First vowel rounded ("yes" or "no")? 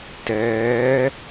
no